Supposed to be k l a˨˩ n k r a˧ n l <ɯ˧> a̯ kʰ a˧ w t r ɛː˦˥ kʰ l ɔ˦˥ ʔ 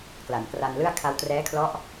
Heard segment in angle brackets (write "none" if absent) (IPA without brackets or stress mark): ɯ˥˩